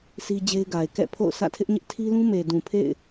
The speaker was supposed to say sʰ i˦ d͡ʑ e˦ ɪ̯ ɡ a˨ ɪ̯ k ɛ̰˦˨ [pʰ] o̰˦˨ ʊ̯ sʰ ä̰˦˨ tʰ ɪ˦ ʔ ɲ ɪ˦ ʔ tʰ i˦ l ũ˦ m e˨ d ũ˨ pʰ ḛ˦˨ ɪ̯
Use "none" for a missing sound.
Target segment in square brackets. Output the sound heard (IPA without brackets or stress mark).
pʰ